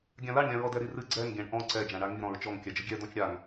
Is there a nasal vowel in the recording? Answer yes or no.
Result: yes